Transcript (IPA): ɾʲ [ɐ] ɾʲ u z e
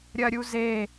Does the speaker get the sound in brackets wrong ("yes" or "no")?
no